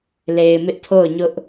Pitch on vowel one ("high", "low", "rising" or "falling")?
low